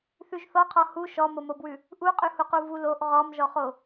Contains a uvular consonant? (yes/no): yes